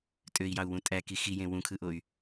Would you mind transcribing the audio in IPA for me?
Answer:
tʼ ø i̯ j ɑ u̯ w ũ tʼ æ k i x i j ẽ w ũ kʰ ɯ ʔ o y̯

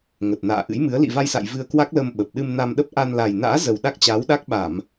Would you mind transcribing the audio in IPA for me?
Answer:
ŋ ə˨˩ t̚ n a̰ː˧˨ ʔ ɨ̰˧˥ j m ɨ˨˦ ə̯ l ḭ˧˨ v a˧ j s a̰˧˨ j v ɨ˧ ə̯ k w a˦˥ k̚ l ə˧ m ɓ ə˨˩ p̚ ɗ ɨ˧ m n a˧ m ɗ ə˦˥ p̚ ʔ a˧ n l a˨˩ j n a̰ː˧˥ z ə˨˩ w ɗ a˦˥ k̚ t͡ɕ aː˨˦ w ɗ a˦˥ k̚ ɓ a˧˩˨ m

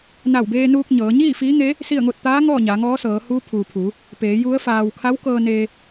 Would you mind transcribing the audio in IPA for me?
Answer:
n a˧˩ w b eː˧ n uː˧ k̚ ɲ ɤː˩˧ ɲ iː˥˨ f iː˧˥ ŋ e˧˥ | s i˥˨ ə̯ ŋ o˥˨ t̚ t̪ aː˧˥ ŋ ɔː˥˨ ɲ aː˩˧ ŋ ɔː˧˥ s ɤː˩˧ h uː˧˥ pʰ uː˩ pʰ u˩˧ | p eː˩˧ j u˧˥ ə̯ f aː˧ w kʰ a˧˥ w k ɤː˧ n e˧

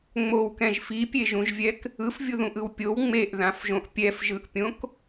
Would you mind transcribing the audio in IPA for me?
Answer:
ŋ͡m o w k ɛ̃ ʒ f i pʲ e ʒ ũ ʒ vʲ ɛ k | ɯ f vʲ u ð ũ ʔ ɯ w pʲ o w ŋ͡m e ʔ ð ã f ʒ õ ʔ pʲ ɛ f ʒ ɯ ʔ pʲ õ k

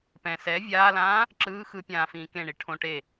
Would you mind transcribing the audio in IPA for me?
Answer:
p ɛ̃ s ɛ vʲ aː l ãː | ǁ ɯː x ɯ pʲ ãː f ĩː k ẽ ɳ i ʈʰ õ ʈ e

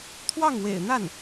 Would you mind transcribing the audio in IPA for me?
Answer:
t̪ʰ w ɑ˥˩ ŋ w ḛ˨˩ ɪ̯ n̪ a˥˩ n

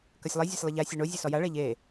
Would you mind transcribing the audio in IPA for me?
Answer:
k ɐ sʲ lˠ i zʲ a sʲ lˠ ɐ ʎ a sʲ o ɳ o zʲ ɛ s ɔ j a ɭ ɛ ʎ e

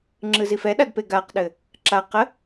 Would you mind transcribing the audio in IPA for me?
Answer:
ŋ͡ǁ ɯ z i f ɛ ɗ a d p e ɡ a q ɗ ɘ | ǁ a q ə

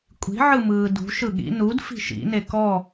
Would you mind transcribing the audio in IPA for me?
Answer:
kʷʼ i̤ ʕ ɯ m ɯː d ṳ ʃ ɯ ɠ ḭ n u d f i̤ ʃ ḭ n e k ɔ

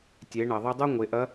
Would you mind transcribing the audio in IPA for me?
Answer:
tʲ e˩˧ ɳ ɐ˩ ðˤ i˧ dˤ u˥ ŋʷ e˩˧ ʔ ɐ˧˥

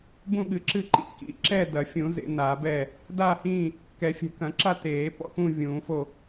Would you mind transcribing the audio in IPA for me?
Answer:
b ũ˥˨ ɠ ɨ˨˩˦ ǁ ɨ˥˨ ǃ ḭ˨˩˦ k ḭ˨˩˦ ǁ ɛ˥˨ d ɐ˨˩˦ fʲ ũ˨˩˦ z ḛ˨˩˦ n a˨˩˦ b ɛ˥˨ | d a˥˨ h ĩː˥˨ | k ɛ˨˩˦ fʲ ɛ̤˨˩˦ k ɐ̃˨˩˦ ǁ a˥˨ t eː˨˩˦ p ɔ̰˥˨ x ũ˥˨ vʲ ũː˨˩˦ f o˥˨

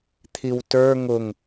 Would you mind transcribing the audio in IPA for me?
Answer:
t̪ʰ i w t ə˞ ŋ ʊ ŋ

